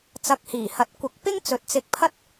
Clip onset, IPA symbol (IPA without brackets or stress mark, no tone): t͡s